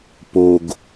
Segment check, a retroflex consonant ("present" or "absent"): absent